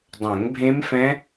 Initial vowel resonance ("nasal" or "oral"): nasal